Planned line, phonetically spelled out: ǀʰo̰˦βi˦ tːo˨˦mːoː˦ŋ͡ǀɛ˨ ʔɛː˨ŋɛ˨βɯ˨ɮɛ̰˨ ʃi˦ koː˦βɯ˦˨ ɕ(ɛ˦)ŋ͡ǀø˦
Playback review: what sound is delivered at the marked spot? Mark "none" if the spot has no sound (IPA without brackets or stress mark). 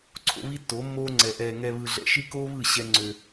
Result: ɛ˦